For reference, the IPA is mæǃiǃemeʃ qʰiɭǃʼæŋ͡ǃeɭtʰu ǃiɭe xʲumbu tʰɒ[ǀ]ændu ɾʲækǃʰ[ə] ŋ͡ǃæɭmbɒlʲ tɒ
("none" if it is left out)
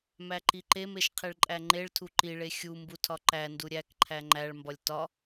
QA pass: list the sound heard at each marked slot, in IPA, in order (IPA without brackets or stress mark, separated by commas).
ǃ, æ